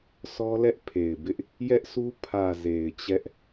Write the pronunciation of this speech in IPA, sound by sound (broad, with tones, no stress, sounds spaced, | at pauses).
s ɔ˦ l ɛ˦ ʔ pʰ e˨ ɪ̯ b ɪ˦ ʔ | j ɛ˦ ʔ s u˦ pʰ ä˨ z e˨ ɪ̯ t͡ɕ ɛ˦ ʔ